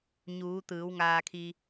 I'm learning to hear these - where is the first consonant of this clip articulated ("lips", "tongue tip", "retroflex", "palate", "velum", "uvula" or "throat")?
palate